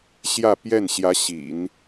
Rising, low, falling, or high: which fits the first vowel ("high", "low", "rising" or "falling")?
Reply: falling